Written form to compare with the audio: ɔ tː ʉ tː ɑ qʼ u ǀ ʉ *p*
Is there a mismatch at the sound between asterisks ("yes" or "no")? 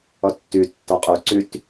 yes